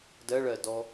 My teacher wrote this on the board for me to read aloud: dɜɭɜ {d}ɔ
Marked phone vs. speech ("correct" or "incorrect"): correct